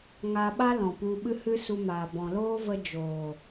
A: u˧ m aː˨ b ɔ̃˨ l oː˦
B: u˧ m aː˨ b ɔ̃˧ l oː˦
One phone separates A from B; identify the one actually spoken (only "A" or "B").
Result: A